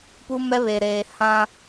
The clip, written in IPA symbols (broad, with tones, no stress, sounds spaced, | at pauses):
p u˦ m ɛ˦ β e˨ ɾ eː˨ h ã˦